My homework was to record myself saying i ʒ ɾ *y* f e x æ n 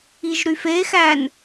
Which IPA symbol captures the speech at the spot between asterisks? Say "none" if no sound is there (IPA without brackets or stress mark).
y